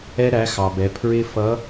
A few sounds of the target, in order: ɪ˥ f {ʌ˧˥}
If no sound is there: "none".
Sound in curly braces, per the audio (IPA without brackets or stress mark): ʌ˧˥